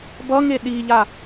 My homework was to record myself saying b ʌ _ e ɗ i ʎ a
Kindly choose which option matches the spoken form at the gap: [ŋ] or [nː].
ŋ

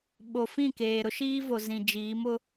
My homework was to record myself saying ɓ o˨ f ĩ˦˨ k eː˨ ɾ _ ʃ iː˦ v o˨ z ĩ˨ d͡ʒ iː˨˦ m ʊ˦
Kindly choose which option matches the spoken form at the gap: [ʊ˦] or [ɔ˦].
ʊ˦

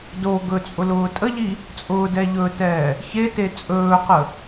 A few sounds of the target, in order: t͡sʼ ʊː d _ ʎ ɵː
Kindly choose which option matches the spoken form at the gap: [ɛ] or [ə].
ɛ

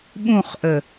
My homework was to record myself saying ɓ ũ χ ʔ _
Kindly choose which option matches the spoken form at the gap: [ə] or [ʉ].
ə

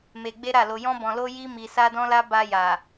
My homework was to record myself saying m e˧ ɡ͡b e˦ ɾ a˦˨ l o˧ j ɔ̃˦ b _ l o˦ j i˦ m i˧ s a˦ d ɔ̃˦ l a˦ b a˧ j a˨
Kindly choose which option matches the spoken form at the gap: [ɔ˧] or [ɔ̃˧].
ɔ̃˧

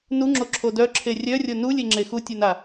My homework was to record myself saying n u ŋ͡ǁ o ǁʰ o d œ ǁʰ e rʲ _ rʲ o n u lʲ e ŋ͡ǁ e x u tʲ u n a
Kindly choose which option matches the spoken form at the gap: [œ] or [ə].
œ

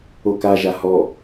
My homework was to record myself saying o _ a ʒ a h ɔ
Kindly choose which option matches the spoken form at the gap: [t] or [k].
k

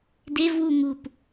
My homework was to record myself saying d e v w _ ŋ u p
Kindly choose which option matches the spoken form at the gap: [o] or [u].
u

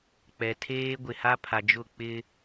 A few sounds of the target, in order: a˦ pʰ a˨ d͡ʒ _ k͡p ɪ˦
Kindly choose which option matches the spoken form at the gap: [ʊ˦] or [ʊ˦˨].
ʊ˦˨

